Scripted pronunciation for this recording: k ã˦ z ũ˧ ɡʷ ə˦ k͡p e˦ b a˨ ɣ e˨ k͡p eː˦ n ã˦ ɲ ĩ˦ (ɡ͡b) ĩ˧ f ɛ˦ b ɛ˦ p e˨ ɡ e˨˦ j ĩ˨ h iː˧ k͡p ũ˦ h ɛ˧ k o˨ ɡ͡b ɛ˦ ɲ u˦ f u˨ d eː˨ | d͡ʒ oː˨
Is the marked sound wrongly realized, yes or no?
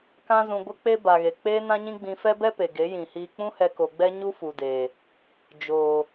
no